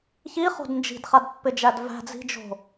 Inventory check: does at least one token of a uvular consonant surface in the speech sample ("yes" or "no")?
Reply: yes